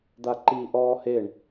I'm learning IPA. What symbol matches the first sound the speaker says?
d̪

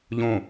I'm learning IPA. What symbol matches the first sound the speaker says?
ʎ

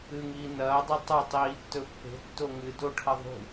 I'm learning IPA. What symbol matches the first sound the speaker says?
ɨ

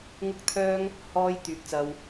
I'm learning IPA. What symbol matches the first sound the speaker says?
ŋ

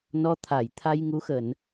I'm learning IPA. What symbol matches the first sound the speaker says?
n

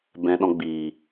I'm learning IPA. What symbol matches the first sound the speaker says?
b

